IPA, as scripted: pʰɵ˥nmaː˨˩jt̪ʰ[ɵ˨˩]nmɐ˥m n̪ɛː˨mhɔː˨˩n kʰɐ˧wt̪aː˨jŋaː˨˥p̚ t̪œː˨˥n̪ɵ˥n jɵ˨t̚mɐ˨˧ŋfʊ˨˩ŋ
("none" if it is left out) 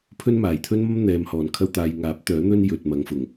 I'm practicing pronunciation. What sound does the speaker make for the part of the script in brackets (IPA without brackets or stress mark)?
ɵ˥